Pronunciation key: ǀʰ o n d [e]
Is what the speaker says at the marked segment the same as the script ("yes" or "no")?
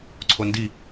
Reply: no